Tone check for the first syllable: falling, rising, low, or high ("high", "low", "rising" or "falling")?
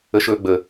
high